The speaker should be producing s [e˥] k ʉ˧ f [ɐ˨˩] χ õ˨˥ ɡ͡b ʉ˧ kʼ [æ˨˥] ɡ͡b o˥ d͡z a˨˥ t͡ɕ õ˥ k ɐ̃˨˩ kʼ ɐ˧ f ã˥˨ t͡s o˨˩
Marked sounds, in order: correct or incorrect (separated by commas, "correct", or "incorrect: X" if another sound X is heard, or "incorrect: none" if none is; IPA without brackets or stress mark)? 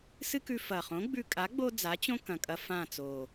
incorrect: ɨ˥, correct, incorrect: a˨˥